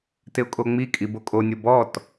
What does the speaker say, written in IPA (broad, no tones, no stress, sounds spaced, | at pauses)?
t ɪ ʊ̯ kʼ o ŋ͡m i kʼ i b o kʼ o nʲ o b ɔ t